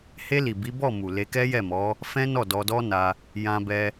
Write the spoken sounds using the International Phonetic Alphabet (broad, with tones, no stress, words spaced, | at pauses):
he˧li˨ bi˨˦bɔ˦˨mu˨ le˧kɛ˦jɛ˦˨mɔ˨˦ | fɛ̃˦nɔ˦˨dɔ˧dɔ˦ na˧ | jã˧bɛ˧